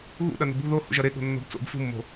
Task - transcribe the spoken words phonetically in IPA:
ɣṵɗɐno̤ bṳ ðo hṵʒɐɾe ɠo̤nːo̤bt͡so̰b fṳmːo̤

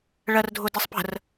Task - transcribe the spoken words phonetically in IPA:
ɭɜrdʱʊdisˤpə̤r

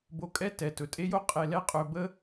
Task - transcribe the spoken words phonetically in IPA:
bo˧kʼɛ˥ tɛ˩ tɵ˩tʼe˥jo˥ qʼe˧lɛ˥ qʼɵ˧ bə˥

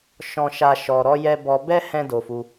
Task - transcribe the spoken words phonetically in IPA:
ʃɔ̃˦ʃa˦ ʃɔ˧ɾɔ˦jɛ˦ bɔ˧bɛ˦ hɛ̃˦do˧fu˧

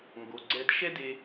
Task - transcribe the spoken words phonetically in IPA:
ŋɡo˩ɡ͡ǀɛ˧d ʃɛ˥de˧

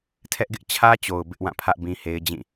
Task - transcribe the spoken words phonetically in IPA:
tʰɛ˦ʔɡɪ˦ʔ t͡ɕʰä˦t͡ɕo˨ʊ̯ bɪ˦ʔwã˦˨pʰä˦ʔ bĩ˦he˦ɪ̯ d͡ʑĩ˦˨

